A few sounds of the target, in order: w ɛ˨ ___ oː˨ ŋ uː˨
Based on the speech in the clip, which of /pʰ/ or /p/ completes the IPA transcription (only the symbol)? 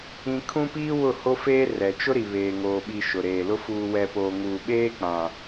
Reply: p